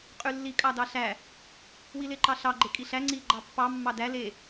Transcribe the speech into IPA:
qʼ y lː i kʼ ɑ d ɑ ɬ æ | w i l e ǃ ɑ ɬ ɑ ɡ͡ǃ e kʼ i ɬ æ ŋ͡ǀ i ɡ͡ǃ ɑ pː ɑ mː ɑ d æ l e

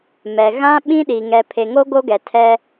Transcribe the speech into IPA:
m ɛ˨ ɣ ã˦ ɓ ĩ˦ ɗ i˨ ŋ ɛ˨ pʰ e˨ ŋ o˦ ɡ o˦ ɡ ɛ˨ tʰ ɛ˦

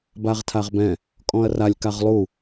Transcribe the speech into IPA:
b a ʁ tʰ a ʁ b ɛ̃ | kʼ ɔ̃ ɐ̯ r a lʲ k a ʁ lˠ u

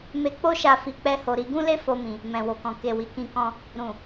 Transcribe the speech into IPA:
m e˧ k͡p o˦ ʃ a˧ f i˧ k͡p ɛ˦ h o˧ ɾ i˧ ɡ ũ˦ l e˦ f o˦ m ĩ˧ | m ɛ̃˨ w o˨ k ɔ̃˨ k e˨ w i˨ k ĩ˧ k ɔ̃˧ | ɾ ũ˨

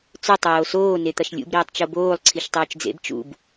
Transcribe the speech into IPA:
t͡s ɵ tˤ oː s oː n e t̪ ɐ ʃ lʲ ṵ b ɾ iː tˤ t͡ʃ o b oː lˠ ǀʰ i ʃ tˤ ɵː t͡ʃ d͡z ḛ b t͡ʃ ṵ b

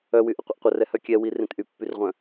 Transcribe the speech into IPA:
œ w y ʔ ə qʷ ə ʔ qʷ ə r ɛ h œ kʲ ɛ w i r ẽ t ʔ y pː y r ʁʷ œ̃

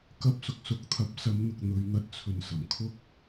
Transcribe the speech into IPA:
k ɐ˧ p̚ s ʊ˨ k̚ s ʊ˨˥ k̚ t̪ʰ ɐ˨˥ p̚ s ɐ˨˧ m n̪ ʊ˨ k̚ n̪ ɵ˨˧ ɥ n̪ ɐ˧ t̚ t͡sʰ ɵ˨ n s ɐ˨˩ m kʰ ʊ˥ k̚

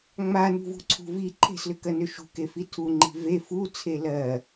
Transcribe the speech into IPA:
ŋ͡m a n ṳ v ṳ ǀʰ ṳ v i ǃʰ e̤ s l ʏ k ɜ n ʏ ʃ ṳ k e f i tʰ u ŋ͡ǃ i̤ v e f u t͡sʰ e l ɜ

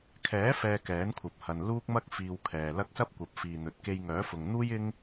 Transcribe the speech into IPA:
kʰ ɛː˨˥ f ɛː˧ k ɛː˨˥ n kʷʰ ɐ˨ p̚ h ɐ˨ n l uː˥ k̚ m ɐ˥ k̚ f iː˧ w kʰ ɛː˨ l ɐ˧ k̚ s ɐ˥ p̚ kʷ ɐ˨˥ p̚ f iː˨ n̪ ɵ˨ t̚ k e˧ j ŋ œː˨˥ f ʊ˨ ŋ n̪ uː˥ j ɪ˥ ŋ

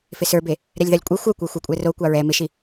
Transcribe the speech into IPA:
f ɪ s ə˞ b e | ɾ ɛ lʲ ð ɑ lʲ kʷʼ e xʷ œ kʷ ə˞ xʷ a kʷʼ ɛ r o kʷ ɑ ɹ ɛ m ɪ ʃ i

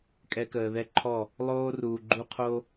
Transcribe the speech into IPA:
kʼ ɛ˧ k əː˨ ð ɛ˦ ǃʰ ɔ˦˨ | lˠ oː˦ r uː˨ ɡ͡ǃ u˦ qʰ o˦

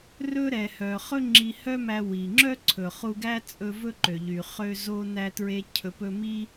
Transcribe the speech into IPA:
r ɵ˥ ɾ ɛ˩ h œ˩ χ ɵ˥ ŋ͡ǁ i˧ h œ˥ m æ˧ w i˩ ŋ͡ǁ œ˥ ǀʰ ɵ˩ χ u˧ ɡ æ˥ t͡sʼ ɵ˧ v ɵ˥ ǃ ø˩ ʎ y˩ χ ø˧ z o˧ n æ˧ t ɹ e˧ cʰ ɵ˩ p ɵ˧ m i˥

